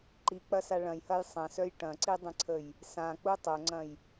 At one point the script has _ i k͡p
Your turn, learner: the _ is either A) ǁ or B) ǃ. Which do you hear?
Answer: B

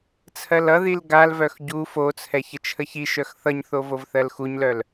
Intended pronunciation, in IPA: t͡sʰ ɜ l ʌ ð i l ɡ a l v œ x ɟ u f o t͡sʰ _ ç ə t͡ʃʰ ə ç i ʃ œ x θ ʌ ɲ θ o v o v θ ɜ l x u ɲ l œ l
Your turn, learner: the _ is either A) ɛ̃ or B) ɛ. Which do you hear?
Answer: B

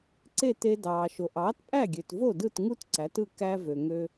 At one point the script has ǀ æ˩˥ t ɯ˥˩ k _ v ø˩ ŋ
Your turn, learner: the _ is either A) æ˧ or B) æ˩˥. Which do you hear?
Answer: A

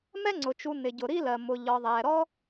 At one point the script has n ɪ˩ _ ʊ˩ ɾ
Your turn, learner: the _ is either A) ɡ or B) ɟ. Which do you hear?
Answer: B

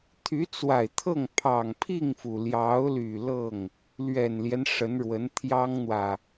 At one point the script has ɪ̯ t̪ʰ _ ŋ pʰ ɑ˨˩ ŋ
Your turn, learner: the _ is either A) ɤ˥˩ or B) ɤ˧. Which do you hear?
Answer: A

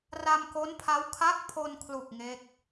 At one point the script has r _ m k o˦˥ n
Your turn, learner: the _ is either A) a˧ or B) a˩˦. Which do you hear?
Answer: A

